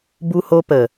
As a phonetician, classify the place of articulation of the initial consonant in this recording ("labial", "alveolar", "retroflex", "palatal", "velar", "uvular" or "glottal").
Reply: labial